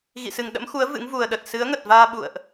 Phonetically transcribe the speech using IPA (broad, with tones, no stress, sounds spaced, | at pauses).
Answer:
ɣ ḭ˧˨ s ɨ˨˩ ŋ ɗ ə̰˧˥ m x u˨˦ ə̯ v ɨ̰˧˥ ŋ v u˨˩ ə̯ ɗ ə˨˩ t̚ s ɨ˨˦ ə̯ ŋ ə˨˩ t̚ v aː˧ ɓ ṵ˧˨ ə̯ ʔ